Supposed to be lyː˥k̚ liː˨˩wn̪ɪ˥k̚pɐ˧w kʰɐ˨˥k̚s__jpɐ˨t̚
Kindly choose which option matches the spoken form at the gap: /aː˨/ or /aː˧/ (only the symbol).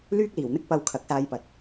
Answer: aː˧